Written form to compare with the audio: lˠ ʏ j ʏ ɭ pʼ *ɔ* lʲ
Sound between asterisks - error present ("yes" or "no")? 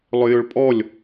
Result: no